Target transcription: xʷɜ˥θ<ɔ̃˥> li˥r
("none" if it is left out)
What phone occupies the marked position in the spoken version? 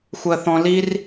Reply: ɔ̃˥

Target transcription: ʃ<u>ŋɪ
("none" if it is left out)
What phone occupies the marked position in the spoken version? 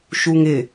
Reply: u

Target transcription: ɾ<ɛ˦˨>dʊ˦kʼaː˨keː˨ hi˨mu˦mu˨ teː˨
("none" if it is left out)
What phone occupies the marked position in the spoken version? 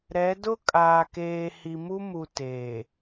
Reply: ɛ˨˦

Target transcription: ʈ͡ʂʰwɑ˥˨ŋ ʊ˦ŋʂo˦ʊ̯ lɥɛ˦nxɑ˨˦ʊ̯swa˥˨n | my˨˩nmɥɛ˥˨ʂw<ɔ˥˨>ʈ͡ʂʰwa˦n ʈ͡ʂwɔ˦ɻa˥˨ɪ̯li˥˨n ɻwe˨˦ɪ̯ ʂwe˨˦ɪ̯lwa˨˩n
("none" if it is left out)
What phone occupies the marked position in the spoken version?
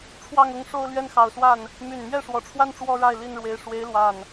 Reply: ɔ˨˩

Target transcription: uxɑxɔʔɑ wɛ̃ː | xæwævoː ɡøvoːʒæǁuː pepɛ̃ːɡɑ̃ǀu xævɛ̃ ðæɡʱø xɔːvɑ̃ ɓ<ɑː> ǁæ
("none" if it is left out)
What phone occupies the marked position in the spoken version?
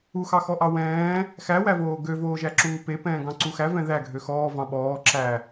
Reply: ɔː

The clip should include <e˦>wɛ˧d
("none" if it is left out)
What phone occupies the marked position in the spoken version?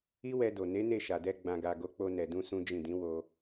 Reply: i˦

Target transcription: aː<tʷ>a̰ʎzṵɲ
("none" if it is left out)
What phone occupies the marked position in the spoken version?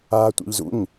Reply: tʷ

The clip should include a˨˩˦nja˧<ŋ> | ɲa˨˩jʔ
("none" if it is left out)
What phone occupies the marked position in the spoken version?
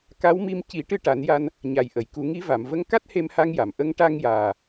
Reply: n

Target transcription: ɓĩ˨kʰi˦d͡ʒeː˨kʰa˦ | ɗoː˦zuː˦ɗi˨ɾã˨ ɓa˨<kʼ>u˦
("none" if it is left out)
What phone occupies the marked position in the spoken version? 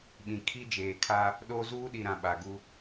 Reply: ɡ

